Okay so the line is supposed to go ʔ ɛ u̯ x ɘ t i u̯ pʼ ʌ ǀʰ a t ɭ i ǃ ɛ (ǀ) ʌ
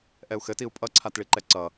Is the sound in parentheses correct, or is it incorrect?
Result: correct